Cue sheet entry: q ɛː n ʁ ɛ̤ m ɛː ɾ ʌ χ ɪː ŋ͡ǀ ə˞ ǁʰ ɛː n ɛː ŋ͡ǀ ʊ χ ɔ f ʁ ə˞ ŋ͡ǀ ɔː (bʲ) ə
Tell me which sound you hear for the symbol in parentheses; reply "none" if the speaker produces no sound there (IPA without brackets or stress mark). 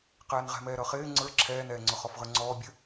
bʲ